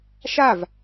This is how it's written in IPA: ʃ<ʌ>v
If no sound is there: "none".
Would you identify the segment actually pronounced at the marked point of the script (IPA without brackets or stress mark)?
a